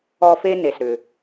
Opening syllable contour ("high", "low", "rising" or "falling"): high